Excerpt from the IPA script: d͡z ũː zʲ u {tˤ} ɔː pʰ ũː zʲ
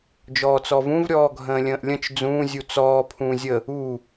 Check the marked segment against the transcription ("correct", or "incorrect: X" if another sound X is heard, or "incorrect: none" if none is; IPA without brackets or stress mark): incorrect: t͡s